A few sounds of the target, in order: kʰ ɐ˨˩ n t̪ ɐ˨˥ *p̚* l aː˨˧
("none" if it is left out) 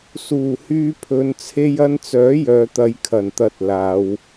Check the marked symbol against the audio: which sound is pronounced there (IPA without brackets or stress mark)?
t̚